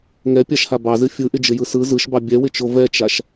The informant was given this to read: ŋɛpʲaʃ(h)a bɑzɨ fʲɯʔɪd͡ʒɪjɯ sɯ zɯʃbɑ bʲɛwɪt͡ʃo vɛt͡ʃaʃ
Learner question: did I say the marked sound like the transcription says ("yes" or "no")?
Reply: yes